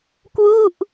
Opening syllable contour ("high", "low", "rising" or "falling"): falling